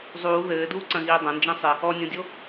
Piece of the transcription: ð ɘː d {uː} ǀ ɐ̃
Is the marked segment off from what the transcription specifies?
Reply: no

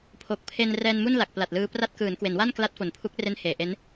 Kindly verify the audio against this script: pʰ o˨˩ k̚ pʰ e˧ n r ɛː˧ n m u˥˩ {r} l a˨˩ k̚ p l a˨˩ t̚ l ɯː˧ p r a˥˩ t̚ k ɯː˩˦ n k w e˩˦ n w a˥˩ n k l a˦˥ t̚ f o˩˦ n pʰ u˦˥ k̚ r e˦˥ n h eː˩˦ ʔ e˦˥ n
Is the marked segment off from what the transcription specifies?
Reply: yes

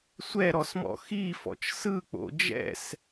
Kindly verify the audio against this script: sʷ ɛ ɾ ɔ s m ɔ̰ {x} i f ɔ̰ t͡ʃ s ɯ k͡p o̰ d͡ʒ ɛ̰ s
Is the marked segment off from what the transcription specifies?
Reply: no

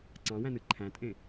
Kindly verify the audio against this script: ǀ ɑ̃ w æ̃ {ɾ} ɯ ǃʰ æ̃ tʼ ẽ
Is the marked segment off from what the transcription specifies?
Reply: yes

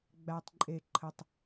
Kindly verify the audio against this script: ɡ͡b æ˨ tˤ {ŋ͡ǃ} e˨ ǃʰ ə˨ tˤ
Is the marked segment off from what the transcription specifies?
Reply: yes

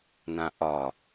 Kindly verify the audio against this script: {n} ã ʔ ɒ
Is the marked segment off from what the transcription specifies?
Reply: no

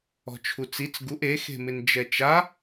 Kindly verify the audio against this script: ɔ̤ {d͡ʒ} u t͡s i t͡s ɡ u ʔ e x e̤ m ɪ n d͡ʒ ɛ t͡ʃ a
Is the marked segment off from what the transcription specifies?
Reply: yes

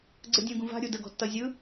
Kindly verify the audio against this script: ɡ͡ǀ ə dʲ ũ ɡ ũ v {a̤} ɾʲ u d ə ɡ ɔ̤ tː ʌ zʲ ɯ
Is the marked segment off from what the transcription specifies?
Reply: no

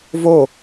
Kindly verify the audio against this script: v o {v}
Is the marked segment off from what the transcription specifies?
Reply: yes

